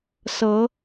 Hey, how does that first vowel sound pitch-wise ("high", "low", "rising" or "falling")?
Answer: rising